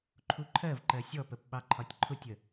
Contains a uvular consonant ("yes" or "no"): no